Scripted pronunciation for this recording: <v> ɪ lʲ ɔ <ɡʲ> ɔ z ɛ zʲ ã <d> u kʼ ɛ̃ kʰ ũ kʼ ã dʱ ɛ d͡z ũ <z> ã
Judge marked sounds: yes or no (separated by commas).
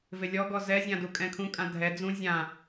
yes, no, yes, no